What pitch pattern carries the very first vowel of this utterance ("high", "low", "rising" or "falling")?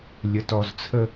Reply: low